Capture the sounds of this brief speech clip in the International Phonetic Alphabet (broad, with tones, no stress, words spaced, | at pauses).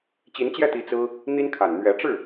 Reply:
t͡ɕi˧˥nt͡ɕjɛ˥˩t̪i˧˥ t͡sɹ̩˥ | n̪i˥nkʰa˨˩n n̪ɥɛ˧˥ʈ͡ʂɻ̩˥˩